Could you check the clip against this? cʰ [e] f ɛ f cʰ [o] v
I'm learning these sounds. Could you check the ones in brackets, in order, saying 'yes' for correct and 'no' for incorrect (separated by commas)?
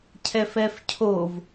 no, yes